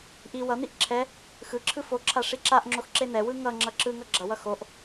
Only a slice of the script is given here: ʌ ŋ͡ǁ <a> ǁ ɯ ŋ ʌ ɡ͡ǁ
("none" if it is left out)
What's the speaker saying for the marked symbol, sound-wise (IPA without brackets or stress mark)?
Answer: ʌ